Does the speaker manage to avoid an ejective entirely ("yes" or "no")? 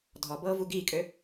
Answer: no